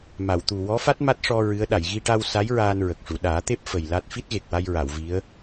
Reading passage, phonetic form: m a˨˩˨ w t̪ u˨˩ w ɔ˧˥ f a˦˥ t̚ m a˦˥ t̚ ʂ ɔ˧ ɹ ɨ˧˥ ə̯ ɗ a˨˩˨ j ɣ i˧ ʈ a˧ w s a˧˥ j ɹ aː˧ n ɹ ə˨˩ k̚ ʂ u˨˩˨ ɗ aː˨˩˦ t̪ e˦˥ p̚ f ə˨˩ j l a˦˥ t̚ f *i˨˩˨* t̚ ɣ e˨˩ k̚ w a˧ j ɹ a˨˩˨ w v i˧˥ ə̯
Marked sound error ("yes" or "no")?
yes